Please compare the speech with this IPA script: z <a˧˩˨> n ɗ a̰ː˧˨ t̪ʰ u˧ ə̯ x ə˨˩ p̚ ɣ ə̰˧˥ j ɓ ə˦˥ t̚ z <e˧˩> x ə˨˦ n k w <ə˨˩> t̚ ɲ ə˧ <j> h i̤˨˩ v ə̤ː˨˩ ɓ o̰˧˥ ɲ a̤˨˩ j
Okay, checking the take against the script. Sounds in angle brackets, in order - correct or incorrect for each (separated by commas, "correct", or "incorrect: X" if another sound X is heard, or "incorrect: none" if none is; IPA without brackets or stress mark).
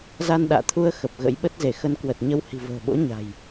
incorrect: a˧, correct, correct, incorrect: w